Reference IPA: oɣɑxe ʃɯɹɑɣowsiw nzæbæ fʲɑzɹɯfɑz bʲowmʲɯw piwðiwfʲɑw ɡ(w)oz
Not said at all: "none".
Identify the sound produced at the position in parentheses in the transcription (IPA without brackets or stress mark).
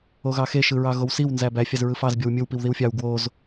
w